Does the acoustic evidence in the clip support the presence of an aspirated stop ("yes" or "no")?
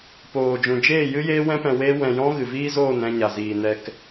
no